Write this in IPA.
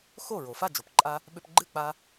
xo˥˩ɹo˩ fa˥˩d͡ʒo˩pǃʼa˧ | ɓʏ˧pɡ͡ǃɨ˥˩k͡pa˧

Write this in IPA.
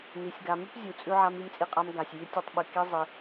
ni˨˦sʲɡa˧ mʉ˦pzʲu˨t͡sʼʉ˧ ʕa˧mi˧mt͡sʼi˧qʼa˧m ɡa˨sʲ jʉ˧ tʲe˧tˤɓɨ˨ ki˦zˤi˧

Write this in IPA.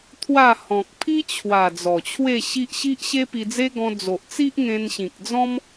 t̪ʰwa˥˧ hɔ̃˨k̚pʰi˦t͡ɕʰwa˨˩ d͡zɔ˨˩t͡ɕʰwe˥˧ɕi˦ʔ ɕi˦ʔɕe˦pi˧d͡ze˦ ɡɔ̃˧d͡zo˨ʔt͡si˦ʔ ŋẽ˧nɕĩ˨k̚d͡zɔ̃˦m

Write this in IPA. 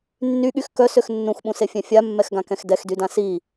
nːyɠyx kœsøx nːũxɓũsefʲɛ̃ fʲamːɛxɡãkɛ̃x dɛxdydã si

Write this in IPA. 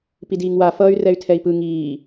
pidiːŋwa fʌːy̯rɛy̯tʰɛi̯pɯ ŋiː

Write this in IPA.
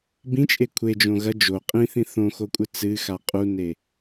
bĩt͡ʃʼe kʷʰed͡ʒõ ɣɐ d͡ʒo qʼĩθĩ θõxokʷʼɨ t͡sɨxa qʼune

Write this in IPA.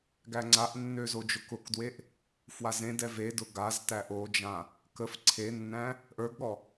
ɡæŋ͡ǀaʔnːø zod͡ʒʊkʊkdweʔ | fwazẽdɛ vedʊ ɡaztæ ʔod͡ʒã | kəf ǀʰenːæ̃ | ʔə˞ɡɠɔ

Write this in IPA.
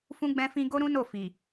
fũ˦ɡ͡bɛ̃˦fĩ˦ ɡo˦ɾũ˦no˦˨ fi˨

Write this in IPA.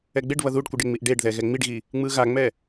ɛɡ͡beɖβʌ ðuɖkʷɯɖeŋ͡miʔ ɖeɖðɛ ɣɛŋ͡miɖɣi | ŋ͡mɯɣaŋ͡mɛ

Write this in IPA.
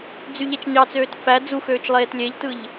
d͡zyʎet͡ʃɲɑt͡søːt fæ d͡zuxøːt͡ʃ lˠeːtlʲeʎtɯʎ

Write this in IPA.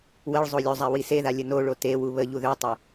wəɭ zˤolʲozˤa wiseða lʲənoɭo tewu βəʎu ðøtˤe

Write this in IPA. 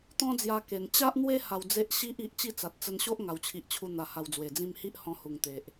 t̪ɔ̃˦d͡zja˧ ke˨˩n t͡ɕa˦ʔn̪we˦ ha˧wd͡ze˦ʔ ɕi˦ʔ i˨ʔt͡ɕi˥˧t͡sa˨t̚ t͡sə˧nɕo˦ʔ ŋa˨˩wt͡ɕʰi˨ʔt͡ɕʰu˧ n̪a˧ha˧wd͡zwe˨˩d͡zĩ˥˧m hi˦ʔhɔ̃˧ hu˨˩ŋ t̪e˨ʔ

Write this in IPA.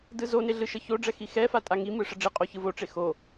dɯzone ɮɯʃəçoɖ͡ʐɛ xixɛfa tʼaŋimɯ ʂəɖ͡ʐiqʼo çɯvoʈ͡ʂe xo

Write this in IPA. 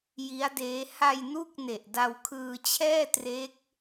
ji˦˥a̯deː˦˥ ha˧jnu˦˥k̚ne˨˩ʔ da˧wkʰɯː˧t͡ɕʰɛː˥˩tre˦˥k̚

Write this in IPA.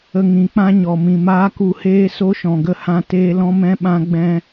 ə˧ŋĩ˨˦k͡pã˦ɲɔ˨ mĩ˨maː˦ku˧heː˦ so˦ʃɔ̃˨ɡə˧ hã˧teː˧ lɔ̃˦mɛ̃˦ɓã˦ ɡ͡bɛ̃˦

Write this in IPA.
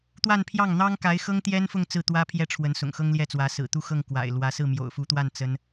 t̪wa˥˧npʰjɑ˥˩ŋn̪ɑ˥ŋ ka˧˥ɪ̯xɤ˥ŋt̪jɛ˥nfʊ˥˧ŋ t͡sɹ̩˥˩t̪wä˥pʰjɛ˥˩ʈ͡ʂʰwə˧˥n sʊ̰˨˩ŋ xɤ˥ŋljɛ˥˩t͡swä˧˥ sɹ̩˨˩t̪u˥˧xɤ˥˩ŋ kwa̰˨˩ɪ̯lwä˧˥ sɹ̩˥˩mjo̰˨˩ʊ̯fu˧˥t̪wa˥˩n t͡sə˥n

